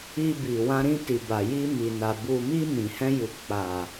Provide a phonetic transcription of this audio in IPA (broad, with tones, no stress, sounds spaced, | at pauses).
i˧ b i˨ w ã˧ ɾ ĩ˧ t i˨ b a˨ j i˧ m i˨ n a˨ b u˨ m i˧ m ĩ˨ h ɛ̃˧ j u˨ k͡p a˨